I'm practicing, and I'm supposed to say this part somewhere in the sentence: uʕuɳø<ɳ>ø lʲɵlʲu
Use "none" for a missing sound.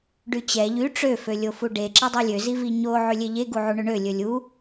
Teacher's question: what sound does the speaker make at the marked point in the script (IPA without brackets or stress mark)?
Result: ɳ